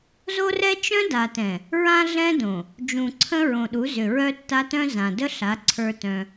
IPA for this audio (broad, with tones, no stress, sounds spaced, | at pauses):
z o˦ r ɛ˦ t͡ʃ œ̃˦ d a˨ t ɛ̃˨ | ɹ ã˦ ɮ ɛ̃˦ d õ˨ | d͡ʒ ũ˨ ǀʰ ə̃˦ ɹ õ˨ ɗ u˨˦ z ʏ˨ ɹ œ˦ tː a˦ t œ̃˦ z ã˨ d ə˦ ɬ a˨˦ ǀʰ ə˞˦ t œ̃˦